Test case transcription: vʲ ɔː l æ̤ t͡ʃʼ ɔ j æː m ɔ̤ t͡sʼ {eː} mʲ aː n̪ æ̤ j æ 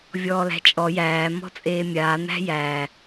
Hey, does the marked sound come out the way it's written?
yes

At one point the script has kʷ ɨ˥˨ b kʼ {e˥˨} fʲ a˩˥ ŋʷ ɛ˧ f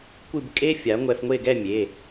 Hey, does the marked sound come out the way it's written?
no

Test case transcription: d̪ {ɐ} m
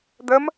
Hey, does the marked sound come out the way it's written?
no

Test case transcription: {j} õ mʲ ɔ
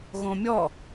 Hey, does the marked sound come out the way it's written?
no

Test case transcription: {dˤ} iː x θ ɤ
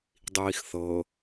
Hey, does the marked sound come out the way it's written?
yes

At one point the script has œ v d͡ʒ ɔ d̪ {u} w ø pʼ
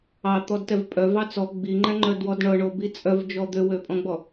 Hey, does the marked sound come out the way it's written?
no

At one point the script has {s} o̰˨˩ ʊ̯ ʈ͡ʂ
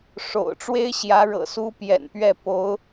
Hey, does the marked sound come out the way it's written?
no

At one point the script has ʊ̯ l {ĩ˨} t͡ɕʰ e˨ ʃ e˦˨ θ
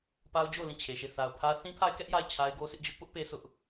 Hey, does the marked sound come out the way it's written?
no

